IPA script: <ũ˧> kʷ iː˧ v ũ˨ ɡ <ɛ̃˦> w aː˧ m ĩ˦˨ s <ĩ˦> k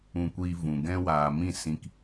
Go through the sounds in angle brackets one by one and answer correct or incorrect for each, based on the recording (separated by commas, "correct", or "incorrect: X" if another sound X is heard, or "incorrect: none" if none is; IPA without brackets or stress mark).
correct, correct, incorrect: ĩ˧